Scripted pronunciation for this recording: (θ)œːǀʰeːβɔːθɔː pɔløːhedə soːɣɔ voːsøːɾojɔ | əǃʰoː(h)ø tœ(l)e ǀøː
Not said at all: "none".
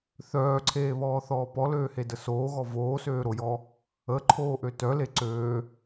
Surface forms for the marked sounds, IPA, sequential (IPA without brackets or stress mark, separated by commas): θ, ʔ, l